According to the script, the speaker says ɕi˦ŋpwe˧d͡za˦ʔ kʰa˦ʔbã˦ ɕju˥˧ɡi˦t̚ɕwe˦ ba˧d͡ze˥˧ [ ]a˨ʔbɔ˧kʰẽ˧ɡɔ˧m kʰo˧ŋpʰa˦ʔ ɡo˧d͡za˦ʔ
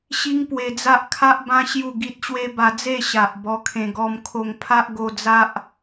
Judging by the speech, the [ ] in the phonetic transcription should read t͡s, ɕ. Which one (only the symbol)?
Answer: ɕ